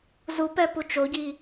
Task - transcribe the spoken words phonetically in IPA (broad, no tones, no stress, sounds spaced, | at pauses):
z u p ɛ p u t͡ʃ o ɟ i